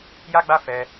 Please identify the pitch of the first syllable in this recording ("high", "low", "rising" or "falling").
high